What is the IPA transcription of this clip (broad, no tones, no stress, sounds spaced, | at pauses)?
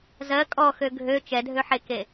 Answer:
z ɜ kʼ ɔ x ø ɡʱ ø t͡ʃ ɛ dʱ ø ħ e k e